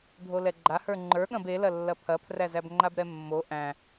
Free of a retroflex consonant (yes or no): yes